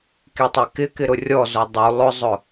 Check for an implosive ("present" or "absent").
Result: absent